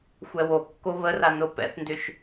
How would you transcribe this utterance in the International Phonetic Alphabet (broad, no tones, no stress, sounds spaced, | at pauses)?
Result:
xʷ ɛ w o kː o β ə r a n o p ɛ̰ θ n d ʏ ʃ